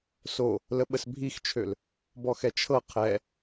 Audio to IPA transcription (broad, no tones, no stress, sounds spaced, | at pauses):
s o | l ə ɓ ə s bʱ i x t͡ʃʰ ø l | b ɔ x ɛ t͡ʃʰ ɤ qʰ ɛ